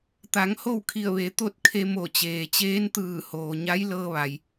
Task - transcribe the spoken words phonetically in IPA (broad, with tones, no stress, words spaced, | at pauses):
t̪a˩˧ŋho˥˨wkʰi˧˩ə̯ʋe˩˧ t̪o˥˨t̚ kʰe˧mo˧˩t͡ɕeː˩t͡ɕeː˧˥n t̪ɯː˧˩hoː˩ ɲa˧˥j lɤː˧ʋa˩j